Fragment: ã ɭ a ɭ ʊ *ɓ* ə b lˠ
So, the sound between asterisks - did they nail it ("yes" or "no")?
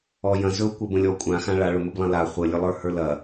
no